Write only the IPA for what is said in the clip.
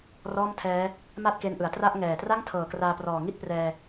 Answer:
r ɔː˥˩ m tʰ ɛː˦˥ | m a˥˩ t̚ k e˧ n ʔ ɯ˩˦ a̯ t r a˥˩ ʔ ŋ ɛː˨˩ t r a˥˩ ŋ tʰ ɤː˨˩ k r aː˧ p r ɔː˨˩ ŋ i˥˩ t̚ p r ɛː˧

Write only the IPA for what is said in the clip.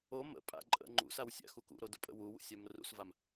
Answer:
o m ə̰ pʼ a̰ ǃʼ ə̰ ŋ͡ǃ ṵ s a w sʲ a̰ x u k ṵ ɾ o d ʊ pʼ ə̰ w u w ṵ sʲ a m r ṵ s v a m

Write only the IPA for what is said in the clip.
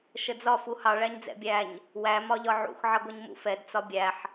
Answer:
ʃ ə d͡z ɒ f u h ɑ ɭ æ ɲ d͡z ɛ̰ bʲ æ ɲ | w æ m ɒ ʎ ɒ ʕ ṵ x ʕ ʌ ɡʷ ʌ ɲ m ṵ f ɛ d t͡s ɒ bʲ æ ħ

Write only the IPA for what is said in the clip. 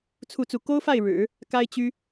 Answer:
t͡sʰ u˥˧ t͡s u˥˩ k o˥ ʊ̯ f a˥˩ ɪ̯ ɻ ɻ̩˨˩˦ | k a˥ ɪ̯ t͡ɕ y˥

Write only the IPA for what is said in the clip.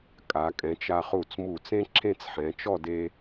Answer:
kʼ a˩˧ kʼ ɛ̃˩˧ t͡ʃ a˧ χ u˧˩ t͡s m u˧˩ t͡s ẽ˥ ǁʰ ẽ˥˧ t͡s ħ ɛ̃˩˧ t͡ʃ ɔ˥˧ d e˧

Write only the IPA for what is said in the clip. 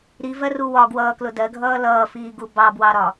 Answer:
ɾ i v ɜ r u w ɒ ɡ w ʌː k l ʊ d ɜ ɡʱ ʌː l ʌː f iː ɡ u b ɑ b w ɑ ɾ ɒ

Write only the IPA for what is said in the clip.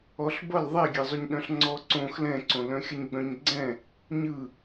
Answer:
ɔ ɬ b ʌ l ðˤ ɛ ɡʲ ɛ zˤ o ɲ ɗ œ̃ ɬ ŋ͡ǀ ɔ ǀ õ x l ɛ̃ ǀ õ l œ̃ xʲ ʌ ɲ ɡ͡b œ̃ ɲ ɡ͡ǀ ɛ̃ | ɲ ɯ

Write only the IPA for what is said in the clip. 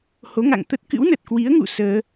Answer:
h o˨˦ ŋ a̰˧˨ ŋ t̪ ə˦˥ t̚ k ɨ̰˧˥ w n ə˨˩ t̚ k w i˨˦ ə̯ ŋ ṵ˧˨ s əː˧

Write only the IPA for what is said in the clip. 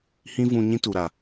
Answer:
h ĩ˦ v ũ˧ ɲ ĩ˦ t u˨ ɾ a˨

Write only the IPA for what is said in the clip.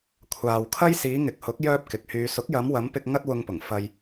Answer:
kʷʰ aː˨ w kʰ ɐ˥ j s iː˨˧ ŋ ɪ˨ k̚ h ʊ˨˥ k̚ j œː˥ p̚ k ɪ˨ k̚ h yː˧ s ʊ˨˥ k̚ j ɐ˨˧ m w ɐ˨˧ m p ɪ˧ k̚ ŋ ɐ˥ t̚ w ʊ˧ ŋ p ʊ˨˩ ŋ f ɐ˧ j

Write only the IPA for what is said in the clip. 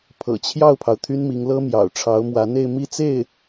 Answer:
pʰ ɤ̰˨˩ t͡ɕʰ j ɑ˥˩ ʊ̯ pʰ ɑ˩ ʊ̯ t̪ʰ y˥ n m i˧˥ ŋ l ɤ˥ m j ɑ̰˨˩ ʊ̯ ʈ͡ʂʰ ɑ˧˥ ʊ̯ m w ä˧˥ n̪ e˥˧ ɪ̯ m i˥˧ t͡s e˥˩ ɪ̯

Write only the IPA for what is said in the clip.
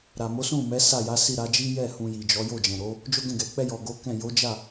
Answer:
ɾ a˨ m o˨˦ s ũ˦˨ m ɛ˨˦ s a˦˨ j a˨˦ s i˦˨ ɾ a˨˦ d͡ʒ i˦ j ɛ˦˨ h ũ˧ j i˨ d͡ʒ ɔ˨˦ j o˦˨ d͡ʒ ɛ̃˨ ɾ o˨˦ | d͡ʒ o˦ ɡ ɛ̃˦˨ ɡ ɛ˨ k͡p ɛ˧ j ɔ˨ ɡ o˨˦ k ɛ̃˦˨ j o˨˦ d͡ʒ a˦˨

